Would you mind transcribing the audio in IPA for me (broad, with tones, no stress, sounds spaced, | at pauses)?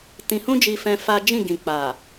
t ĩ˧ h ũ˦ d͡ʒ i˧ f ɛ̃˧ f a˦ d͡ʒ ĩ˦˨ ɡ ĩ˨ k͡p a˨